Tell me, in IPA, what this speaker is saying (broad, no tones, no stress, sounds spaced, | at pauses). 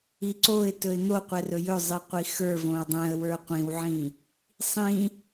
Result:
i ǀ o ɪ̯ t ɵ ɪ̯ n̪ o qʷ ɛ r ɵ j ɵ zˤ i qʷ i x ə˞ v õ ə̯ dˤ ɛ̃ ə̯ w ə˞ qʷ ĩ w ʕ ĩ | sˤ ĩ